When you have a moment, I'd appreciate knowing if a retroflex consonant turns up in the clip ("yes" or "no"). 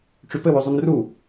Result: yes